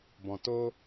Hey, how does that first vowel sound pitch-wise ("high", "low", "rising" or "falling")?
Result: low